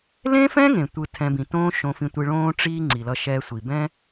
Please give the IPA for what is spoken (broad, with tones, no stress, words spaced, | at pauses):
lẽ˥fɛ̃˥ ŋẽ˩tʷɯ˧ tʰɛ̃˧ bĩ˩ tõː˥ ʃõ˧fĩ˧tʷi˧ ɭõː˥ʈ͡ʂiː˥ ŋ͡ǀi˩lʌ˧ ʃɛ˧sʷi˩bɛ̃˥